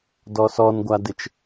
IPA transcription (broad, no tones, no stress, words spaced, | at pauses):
dɔsɔnɡʷadɪt͡ʃ